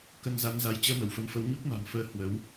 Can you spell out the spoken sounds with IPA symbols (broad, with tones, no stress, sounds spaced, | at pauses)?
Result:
k ə˧ n z a˨˦ n z a˨˦ j t͡ɕ əː˧ m ə˧˩ w f ə˨˦ m f ə˨˦ w ɲ u˦˥ k̚ m a̤˨˩ m f əː˧ h w ə˨˦ w